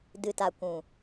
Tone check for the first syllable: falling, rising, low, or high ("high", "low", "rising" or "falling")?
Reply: low